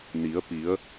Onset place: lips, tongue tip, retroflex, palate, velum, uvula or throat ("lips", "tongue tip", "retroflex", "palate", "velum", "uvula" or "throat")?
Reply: tongue tip